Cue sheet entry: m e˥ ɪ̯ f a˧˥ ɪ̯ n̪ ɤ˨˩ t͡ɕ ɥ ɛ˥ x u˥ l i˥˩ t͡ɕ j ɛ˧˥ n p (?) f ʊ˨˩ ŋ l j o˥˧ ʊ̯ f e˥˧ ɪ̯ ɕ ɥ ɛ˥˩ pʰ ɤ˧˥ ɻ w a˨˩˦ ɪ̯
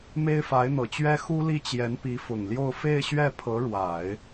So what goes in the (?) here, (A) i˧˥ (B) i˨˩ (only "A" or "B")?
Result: A